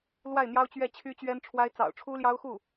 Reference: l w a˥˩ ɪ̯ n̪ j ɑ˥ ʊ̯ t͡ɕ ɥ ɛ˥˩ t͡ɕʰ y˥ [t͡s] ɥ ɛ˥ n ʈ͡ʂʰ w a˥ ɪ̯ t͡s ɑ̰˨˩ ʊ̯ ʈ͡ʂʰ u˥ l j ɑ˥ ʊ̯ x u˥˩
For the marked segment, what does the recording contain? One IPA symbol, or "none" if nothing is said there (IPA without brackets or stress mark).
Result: t͡ɕ